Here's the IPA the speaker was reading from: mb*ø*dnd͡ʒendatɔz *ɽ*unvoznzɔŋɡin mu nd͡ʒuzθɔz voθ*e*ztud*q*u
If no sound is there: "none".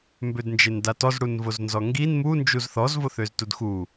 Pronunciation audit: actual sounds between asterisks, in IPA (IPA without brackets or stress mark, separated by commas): ø, ɽ, ø, x